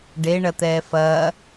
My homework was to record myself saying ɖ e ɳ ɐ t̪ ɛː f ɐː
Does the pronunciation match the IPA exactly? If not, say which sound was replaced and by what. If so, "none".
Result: none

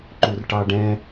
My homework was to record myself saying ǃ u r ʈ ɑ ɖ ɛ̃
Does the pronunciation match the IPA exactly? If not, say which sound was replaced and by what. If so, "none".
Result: none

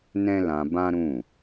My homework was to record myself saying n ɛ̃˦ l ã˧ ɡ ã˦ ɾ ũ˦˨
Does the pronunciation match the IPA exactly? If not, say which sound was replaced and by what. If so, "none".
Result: ɡ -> b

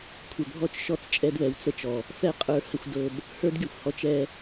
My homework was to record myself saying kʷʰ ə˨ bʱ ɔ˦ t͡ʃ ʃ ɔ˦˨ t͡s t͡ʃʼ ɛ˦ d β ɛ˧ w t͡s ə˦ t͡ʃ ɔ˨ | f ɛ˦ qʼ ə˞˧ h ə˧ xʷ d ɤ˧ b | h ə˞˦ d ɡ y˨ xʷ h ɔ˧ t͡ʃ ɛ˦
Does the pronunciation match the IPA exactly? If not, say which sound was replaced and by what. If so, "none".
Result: none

